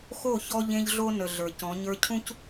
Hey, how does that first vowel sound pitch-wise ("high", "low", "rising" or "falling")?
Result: falling